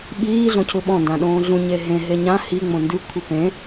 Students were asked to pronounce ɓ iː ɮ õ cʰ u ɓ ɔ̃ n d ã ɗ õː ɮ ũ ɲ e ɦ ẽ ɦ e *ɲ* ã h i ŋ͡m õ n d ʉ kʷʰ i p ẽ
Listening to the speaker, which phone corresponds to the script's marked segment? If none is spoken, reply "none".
ɲ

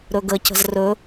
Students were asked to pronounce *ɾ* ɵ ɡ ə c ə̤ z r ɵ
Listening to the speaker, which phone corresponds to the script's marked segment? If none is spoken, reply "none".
ɾ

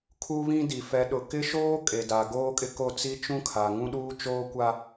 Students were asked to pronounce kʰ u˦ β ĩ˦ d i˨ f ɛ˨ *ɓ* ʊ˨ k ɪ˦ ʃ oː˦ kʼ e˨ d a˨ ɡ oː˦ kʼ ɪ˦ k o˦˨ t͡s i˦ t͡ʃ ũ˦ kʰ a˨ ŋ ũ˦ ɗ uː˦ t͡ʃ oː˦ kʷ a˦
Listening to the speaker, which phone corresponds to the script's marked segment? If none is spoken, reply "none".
ɗ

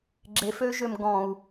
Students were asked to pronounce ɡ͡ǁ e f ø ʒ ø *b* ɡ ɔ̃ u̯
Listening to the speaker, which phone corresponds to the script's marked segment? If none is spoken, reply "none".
m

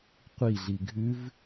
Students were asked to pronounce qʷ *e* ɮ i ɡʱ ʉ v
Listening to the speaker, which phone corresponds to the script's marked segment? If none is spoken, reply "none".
i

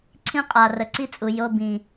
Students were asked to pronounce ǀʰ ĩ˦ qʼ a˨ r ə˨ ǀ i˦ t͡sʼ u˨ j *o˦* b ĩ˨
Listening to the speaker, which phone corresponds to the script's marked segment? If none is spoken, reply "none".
o˧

